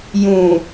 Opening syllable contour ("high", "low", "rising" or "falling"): low